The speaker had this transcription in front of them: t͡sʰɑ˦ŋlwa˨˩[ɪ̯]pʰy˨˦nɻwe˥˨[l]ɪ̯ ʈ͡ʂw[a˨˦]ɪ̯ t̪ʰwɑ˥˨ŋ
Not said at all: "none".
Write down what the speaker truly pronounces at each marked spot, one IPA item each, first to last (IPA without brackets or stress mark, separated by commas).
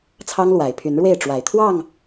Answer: ɪ̯, none, a˨˩